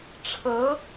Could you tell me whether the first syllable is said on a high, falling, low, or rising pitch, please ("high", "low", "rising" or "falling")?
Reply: rising